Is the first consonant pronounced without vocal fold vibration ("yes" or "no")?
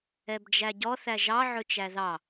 no